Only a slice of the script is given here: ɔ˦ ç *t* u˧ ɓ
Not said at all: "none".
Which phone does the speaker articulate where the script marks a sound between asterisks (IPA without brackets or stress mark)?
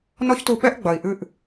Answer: t